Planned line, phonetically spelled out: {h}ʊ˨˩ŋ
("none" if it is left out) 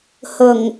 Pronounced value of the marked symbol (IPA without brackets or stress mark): h